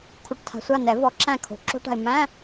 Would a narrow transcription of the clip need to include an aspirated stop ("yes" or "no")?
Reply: yes